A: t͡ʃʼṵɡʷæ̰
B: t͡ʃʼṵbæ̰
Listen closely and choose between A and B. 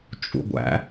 A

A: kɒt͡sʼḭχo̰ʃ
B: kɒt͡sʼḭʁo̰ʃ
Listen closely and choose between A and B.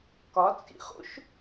A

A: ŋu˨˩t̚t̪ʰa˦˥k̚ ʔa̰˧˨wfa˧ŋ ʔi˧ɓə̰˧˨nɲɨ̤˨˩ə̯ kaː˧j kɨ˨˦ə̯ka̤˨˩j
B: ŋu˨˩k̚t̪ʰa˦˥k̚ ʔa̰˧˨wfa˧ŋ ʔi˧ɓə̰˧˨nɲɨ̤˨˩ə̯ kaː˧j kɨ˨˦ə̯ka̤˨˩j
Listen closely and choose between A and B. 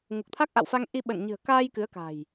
B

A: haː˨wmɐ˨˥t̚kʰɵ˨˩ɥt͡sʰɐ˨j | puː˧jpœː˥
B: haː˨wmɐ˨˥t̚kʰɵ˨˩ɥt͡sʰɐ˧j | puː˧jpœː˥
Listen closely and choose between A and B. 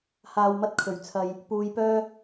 A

